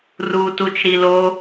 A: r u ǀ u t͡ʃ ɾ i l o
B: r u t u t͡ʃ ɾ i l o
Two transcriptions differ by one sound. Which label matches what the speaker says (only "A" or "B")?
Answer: B